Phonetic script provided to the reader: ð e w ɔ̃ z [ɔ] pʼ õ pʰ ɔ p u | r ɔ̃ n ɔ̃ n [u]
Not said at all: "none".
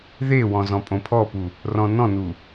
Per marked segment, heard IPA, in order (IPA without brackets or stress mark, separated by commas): ɔ̃, u